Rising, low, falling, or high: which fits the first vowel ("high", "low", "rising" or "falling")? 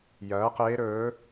rising